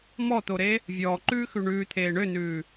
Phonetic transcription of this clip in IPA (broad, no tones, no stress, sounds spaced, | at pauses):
m ɔ t̪ o ɾ e | vʲ ɔː ǃ ʉː x ʉ ɳ ʉː t̪ʰ eː ɳ ø n ʉː